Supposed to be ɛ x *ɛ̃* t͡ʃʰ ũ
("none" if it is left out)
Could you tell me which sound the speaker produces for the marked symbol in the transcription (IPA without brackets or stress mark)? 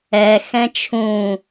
ɛ̃